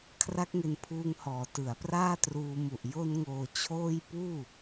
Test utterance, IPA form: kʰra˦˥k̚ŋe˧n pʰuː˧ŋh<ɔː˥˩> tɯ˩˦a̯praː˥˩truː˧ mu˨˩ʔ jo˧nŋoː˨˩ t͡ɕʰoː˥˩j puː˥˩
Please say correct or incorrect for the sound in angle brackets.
incorrect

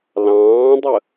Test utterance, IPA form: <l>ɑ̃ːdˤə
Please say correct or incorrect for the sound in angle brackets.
correct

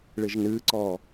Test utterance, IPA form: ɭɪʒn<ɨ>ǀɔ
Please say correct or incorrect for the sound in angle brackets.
correct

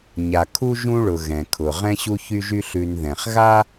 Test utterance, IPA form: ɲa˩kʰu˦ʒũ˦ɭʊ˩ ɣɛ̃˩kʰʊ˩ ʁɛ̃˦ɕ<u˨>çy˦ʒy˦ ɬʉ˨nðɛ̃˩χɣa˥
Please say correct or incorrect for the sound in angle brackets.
incorrect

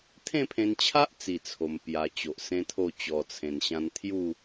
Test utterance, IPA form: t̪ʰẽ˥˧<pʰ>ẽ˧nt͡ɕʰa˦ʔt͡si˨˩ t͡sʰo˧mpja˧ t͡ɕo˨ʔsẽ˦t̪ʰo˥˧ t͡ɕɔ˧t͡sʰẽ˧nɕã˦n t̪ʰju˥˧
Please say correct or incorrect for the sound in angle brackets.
correct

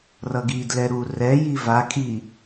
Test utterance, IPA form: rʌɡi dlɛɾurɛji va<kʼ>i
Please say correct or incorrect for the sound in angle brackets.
correct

